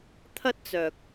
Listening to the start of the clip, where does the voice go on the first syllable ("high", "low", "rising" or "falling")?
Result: high